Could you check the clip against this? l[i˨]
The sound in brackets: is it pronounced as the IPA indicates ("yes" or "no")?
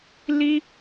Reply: no